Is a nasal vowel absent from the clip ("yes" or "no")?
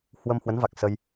yes